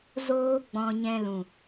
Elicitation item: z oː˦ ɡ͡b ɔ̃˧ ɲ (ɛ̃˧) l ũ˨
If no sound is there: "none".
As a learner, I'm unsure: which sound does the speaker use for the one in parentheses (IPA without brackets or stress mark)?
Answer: ɛ̃˧